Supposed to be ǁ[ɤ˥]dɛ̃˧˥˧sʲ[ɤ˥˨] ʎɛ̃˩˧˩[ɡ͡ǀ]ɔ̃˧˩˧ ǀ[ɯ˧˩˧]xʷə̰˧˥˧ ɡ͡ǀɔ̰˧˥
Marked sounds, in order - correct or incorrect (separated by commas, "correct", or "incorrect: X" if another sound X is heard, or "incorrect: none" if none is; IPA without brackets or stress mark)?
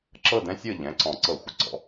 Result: incorrect: ɤ˥˨, correct, incorrect: ǀ, incorrect: ɤ˧˩˧